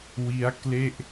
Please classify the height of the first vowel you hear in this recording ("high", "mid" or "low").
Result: high